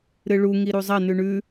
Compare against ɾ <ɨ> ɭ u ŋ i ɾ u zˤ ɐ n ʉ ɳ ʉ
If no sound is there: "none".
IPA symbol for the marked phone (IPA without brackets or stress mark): ɨ